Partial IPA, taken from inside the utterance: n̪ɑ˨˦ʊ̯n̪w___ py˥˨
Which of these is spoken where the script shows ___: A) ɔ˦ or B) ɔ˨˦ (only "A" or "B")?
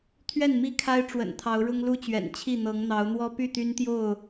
A